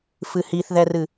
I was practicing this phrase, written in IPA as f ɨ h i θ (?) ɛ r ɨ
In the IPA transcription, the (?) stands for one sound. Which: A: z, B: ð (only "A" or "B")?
B